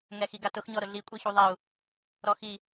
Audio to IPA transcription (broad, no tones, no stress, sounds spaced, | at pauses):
ŋ ɛ x i ɡ a t ʊ x ɲ ɔ ɾ ʊ ɮ i kʷʼ i ç u ðˤ ɛ u̯ | ɾ ɔ x i